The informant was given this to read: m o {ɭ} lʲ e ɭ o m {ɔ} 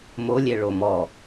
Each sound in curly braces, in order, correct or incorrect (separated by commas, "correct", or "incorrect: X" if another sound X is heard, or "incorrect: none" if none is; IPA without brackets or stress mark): incorrect: none, correct